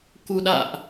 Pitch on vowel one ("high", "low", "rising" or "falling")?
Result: low